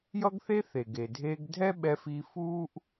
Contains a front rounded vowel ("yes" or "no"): no